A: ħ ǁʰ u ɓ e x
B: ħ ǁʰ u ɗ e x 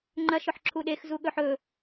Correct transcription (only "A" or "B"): B